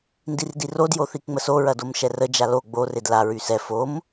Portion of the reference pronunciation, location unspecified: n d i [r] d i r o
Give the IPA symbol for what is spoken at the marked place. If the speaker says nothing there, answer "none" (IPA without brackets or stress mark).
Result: r